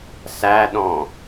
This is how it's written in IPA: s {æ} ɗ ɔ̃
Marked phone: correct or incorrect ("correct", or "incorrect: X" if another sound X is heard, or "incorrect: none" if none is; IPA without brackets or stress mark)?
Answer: correct